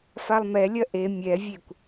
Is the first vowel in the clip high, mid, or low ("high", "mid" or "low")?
low